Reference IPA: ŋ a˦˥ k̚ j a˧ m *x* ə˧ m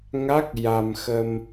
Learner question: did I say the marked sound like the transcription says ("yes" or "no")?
yes